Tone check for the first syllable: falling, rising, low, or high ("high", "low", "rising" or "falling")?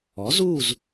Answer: rising